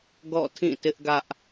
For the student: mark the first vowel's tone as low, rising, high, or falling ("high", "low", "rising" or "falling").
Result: falling